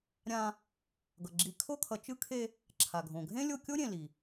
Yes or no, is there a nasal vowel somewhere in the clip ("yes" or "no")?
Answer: yes